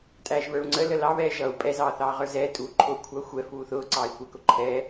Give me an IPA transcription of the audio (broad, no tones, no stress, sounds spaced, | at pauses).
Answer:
tʼ æː ʒ β ə˞ u̯ ŋ͡ǀ ə l ə l ɑ β ɛː ʒ ʌ u̯ pʼ ɛ z ɑː θ ɑː ʁ ə˞ z ɛː tʼ uː ǃʰ ʊː kʷʰ ɑ xʷ ɛ f uː θ ʊː ǀ ɑː i̯ kʷ ɛ k ʊ ǃʰ ɛ